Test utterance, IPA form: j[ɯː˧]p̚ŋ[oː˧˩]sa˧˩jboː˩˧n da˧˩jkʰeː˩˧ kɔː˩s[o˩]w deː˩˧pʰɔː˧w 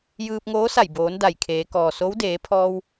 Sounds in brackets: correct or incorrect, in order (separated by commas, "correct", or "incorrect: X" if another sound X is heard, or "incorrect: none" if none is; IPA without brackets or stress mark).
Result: correct, incorrect: oː˧˥, incorrect: o˧˥